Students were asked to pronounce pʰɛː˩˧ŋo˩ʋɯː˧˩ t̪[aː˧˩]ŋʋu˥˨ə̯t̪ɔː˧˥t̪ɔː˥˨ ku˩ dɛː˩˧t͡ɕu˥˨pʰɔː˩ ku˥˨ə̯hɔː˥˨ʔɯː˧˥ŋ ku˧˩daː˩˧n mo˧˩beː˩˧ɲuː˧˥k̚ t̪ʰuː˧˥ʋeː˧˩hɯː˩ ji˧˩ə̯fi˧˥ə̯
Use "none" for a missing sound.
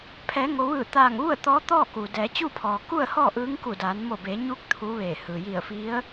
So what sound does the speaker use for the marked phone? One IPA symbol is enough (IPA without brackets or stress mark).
aː˧˩